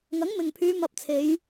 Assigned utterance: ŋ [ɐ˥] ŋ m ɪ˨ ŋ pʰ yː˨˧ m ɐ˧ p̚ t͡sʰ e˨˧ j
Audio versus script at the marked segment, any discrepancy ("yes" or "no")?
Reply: yes